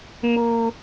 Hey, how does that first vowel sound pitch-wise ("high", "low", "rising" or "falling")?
high